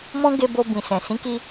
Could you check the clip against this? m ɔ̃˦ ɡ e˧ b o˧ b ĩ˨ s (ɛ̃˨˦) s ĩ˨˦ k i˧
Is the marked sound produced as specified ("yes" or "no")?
no